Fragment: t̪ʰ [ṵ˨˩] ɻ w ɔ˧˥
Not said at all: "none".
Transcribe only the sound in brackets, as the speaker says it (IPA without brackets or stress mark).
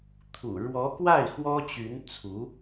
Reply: ṵ˨˩